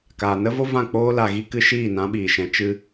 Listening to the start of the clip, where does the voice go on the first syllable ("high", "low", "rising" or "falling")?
low